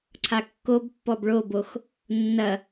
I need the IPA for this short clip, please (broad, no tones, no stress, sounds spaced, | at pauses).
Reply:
ǀʰ a kː o b pː ɔ b ɭ o b o x | nː ɐ